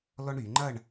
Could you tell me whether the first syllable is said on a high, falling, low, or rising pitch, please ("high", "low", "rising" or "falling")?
high